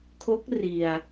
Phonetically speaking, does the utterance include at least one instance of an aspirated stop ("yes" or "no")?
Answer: yes